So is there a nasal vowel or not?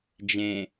yes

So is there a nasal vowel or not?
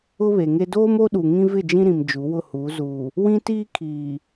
yes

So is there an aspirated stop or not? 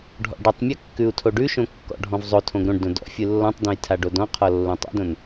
yes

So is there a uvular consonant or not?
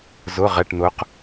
yes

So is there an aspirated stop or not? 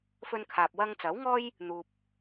yes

